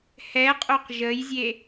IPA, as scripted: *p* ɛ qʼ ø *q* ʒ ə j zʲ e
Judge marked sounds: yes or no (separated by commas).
no, yes